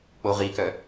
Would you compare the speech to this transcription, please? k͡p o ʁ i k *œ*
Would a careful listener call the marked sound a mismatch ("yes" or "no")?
no